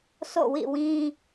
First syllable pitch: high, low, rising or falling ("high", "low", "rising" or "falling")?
falling